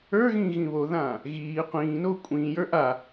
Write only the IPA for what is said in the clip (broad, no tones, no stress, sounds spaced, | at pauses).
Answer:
ə˞ ɣ ĩː ɣ ĩ β o ð ãː | ɣ iː qʷ ĩː n oː kʷʼ ĩː j ə˞ ʔ a